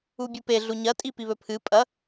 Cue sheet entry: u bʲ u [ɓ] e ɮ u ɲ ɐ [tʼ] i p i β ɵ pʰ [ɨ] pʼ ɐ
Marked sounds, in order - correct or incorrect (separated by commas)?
incorrect, correct, correct